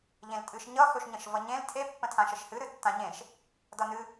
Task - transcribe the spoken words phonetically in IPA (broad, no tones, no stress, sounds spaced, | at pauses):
ʎ ẽ l tʼ ɨ ʃ ɲ ʌ x ɵ ʃ ɲ ə̃ ʃ v ʌ ɲ ẽ l tʰ e pː ə̃ tʰ ã ʃ ə ʃ h ɨ ɾ ɨ tː ã ɲ ẽ ʃ | d ʌ n ɨ